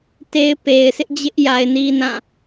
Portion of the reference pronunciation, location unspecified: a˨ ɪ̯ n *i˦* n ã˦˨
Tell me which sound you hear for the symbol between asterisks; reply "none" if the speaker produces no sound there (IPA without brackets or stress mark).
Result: i˦